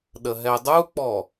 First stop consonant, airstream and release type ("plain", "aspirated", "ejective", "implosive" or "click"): implosive